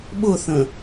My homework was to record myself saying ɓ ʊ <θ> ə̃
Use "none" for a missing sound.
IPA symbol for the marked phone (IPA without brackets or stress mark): θ